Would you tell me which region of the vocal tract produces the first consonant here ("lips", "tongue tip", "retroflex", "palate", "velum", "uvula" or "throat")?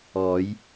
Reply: palate